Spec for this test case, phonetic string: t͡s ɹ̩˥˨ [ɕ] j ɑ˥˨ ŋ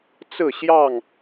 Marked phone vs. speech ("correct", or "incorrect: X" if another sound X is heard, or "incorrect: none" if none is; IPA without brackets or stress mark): correct